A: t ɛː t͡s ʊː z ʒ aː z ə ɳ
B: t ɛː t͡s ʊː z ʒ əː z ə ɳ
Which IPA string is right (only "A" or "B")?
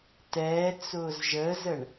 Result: B